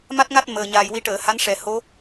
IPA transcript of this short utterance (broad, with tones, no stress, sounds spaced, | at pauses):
m a˦˥ t̚ ŋ a˦˥ t̚ m əː˨˩ ɲ aː˨˩ j w i˧ ʈ əː˨˩˨ h a˧˥ n ʂ ɛ˨˩ h o˧˥